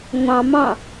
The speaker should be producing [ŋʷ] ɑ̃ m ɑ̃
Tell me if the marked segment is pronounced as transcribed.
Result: yes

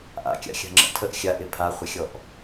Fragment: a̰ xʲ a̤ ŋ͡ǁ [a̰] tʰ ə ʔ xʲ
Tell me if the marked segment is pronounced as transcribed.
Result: no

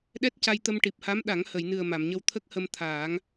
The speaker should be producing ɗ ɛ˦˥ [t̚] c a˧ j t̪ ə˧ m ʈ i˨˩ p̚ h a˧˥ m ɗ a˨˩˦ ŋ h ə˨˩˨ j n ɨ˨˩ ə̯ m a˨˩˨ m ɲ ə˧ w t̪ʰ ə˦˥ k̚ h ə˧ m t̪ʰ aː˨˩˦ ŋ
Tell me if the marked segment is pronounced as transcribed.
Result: yes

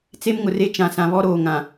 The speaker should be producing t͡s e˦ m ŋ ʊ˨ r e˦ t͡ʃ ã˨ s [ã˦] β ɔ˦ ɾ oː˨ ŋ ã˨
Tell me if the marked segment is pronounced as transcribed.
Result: no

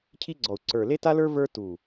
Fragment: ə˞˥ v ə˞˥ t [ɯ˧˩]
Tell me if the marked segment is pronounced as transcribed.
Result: no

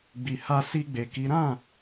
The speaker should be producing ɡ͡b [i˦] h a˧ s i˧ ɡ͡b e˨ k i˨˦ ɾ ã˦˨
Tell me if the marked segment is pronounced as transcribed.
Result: no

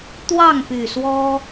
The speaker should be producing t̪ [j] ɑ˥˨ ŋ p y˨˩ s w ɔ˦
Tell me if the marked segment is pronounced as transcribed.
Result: no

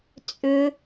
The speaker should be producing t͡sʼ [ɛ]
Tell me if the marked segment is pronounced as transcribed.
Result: no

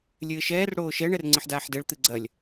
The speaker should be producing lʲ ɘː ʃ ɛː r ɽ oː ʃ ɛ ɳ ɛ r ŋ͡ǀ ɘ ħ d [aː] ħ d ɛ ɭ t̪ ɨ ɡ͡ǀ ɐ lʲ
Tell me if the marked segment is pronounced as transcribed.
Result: yes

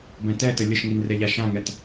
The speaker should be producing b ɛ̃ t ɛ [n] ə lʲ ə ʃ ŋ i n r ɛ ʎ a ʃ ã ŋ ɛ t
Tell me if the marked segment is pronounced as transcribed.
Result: no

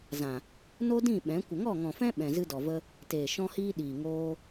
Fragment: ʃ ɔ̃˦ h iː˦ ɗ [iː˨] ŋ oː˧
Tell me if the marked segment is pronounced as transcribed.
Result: yes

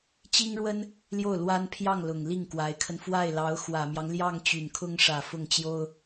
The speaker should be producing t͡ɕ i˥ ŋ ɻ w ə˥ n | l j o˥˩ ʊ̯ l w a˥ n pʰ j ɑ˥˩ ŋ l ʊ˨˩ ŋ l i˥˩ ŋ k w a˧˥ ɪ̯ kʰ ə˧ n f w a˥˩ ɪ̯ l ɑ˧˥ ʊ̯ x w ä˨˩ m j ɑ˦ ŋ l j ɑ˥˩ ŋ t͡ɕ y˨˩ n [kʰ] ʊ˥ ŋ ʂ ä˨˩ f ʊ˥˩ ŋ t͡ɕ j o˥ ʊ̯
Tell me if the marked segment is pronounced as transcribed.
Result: yes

